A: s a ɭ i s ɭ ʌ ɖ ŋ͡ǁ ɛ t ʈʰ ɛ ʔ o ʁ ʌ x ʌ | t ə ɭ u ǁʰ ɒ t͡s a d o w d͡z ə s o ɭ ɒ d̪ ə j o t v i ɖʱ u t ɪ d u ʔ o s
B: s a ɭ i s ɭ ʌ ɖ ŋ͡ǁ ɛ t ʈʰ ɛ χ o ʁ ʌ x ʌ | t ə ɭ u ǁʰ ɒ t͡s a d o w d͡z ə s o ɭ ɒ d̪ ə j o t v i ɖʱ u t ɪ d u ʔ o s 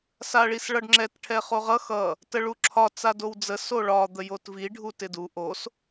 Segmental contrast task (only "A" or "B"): B